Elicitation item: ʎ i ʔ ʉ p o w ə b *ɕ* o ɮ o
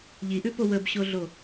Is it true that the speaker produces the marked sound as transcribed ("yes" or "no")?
yes